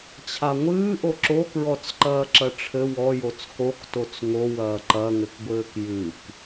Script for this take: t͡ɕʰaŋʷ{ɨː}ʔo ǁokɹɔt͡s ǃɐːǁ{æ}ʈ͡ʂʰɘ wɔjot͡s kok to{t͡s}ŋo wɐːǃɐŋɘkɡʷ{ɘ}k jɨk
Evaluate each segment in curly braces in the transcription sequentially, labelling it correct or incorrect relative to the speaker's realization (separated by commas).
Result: correct, incorrect, correct, incorrect